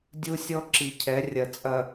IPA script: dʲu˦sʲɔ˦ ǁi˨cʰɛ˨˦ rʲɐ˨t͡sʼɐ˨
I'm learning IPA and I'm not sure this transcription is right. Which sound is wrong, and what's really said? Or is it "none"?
none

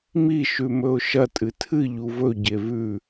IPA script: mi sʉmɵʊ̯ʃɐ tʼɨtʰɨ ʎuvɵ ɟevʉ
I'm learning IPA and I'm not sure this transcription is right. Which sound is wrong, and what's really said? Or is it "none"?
s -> ʃ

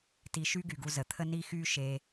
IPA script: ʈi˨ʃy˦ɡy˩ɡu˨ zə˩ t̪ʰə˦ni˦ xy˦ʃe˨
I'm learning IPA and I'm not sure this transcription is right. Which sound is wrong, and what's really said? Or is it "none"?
ʈ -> t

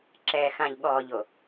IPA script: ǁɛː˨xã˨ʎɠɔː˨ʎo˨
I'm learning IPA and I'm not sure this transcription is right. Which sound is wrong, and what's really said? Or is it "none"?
none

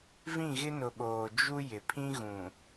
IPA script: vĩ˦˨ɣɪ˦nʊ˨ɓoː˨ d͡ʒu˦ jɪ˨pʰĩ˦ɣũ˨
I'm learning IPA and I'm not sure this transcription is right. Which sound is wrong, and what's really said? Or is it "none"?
none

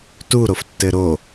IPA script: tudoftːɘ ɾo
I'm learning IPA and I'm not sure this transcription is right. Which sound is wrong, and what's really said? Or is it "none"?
d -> ɾ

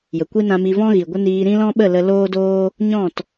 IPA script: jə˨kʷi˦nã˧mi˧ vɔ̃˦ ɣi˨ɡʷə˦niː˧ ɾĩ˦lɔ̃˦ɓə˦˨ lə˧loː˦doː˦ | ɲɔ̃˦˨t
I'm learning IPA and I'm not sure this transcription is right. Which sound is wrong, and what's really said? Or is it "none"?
none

